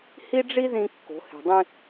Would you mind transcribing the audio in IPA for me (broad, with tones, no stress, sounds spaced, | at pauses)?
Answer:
h i˥ ɖ͡ʐ i˥ ð ĩ˧ kː o̤˩˧ h e̤˩ dˤ ĩ˧